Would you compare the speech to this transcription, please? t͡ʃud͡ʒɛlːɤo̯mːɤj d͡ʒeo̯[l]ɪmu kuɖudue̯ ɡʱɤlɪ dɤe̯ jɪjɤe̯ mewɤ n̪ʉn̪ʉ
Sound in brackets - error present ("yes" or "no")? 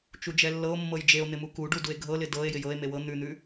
yes